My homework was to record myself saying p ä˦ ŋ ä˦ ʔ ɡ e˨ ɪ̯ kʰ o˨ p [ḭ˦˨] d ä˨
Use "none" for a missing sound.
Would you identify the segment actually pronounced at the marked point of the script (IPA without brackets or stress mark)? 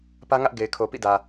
ḭ˦˨